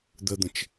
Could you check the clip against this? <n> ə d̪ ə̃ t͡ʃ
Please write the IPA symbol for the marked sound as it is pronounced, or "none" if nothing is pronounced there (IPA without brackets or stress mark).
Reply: d̪